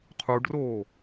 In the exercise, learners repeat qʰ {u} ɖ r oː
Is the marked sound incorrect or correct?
correct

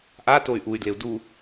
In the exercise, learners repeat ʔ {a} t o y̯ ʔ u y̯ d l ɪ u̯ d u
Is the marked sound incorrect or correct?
correct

